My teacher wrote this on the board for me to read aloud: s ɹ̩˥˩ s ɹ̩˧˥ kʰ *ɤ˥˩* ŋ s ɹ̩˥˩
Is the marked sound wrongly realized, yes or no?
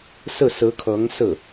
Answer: yes